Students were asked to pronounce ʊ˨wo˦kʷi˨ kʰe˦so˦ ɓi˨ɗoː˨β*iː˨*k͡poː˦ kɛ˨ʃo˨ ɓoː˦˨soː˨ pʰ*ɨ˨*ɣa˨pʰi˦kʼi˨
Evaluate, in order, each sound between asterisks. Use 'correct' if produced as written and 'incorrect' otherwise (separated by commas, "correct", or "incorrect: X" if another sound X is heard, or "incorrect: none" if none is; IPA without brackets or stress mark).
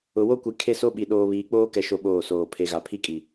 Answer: correct, incorrect: e˨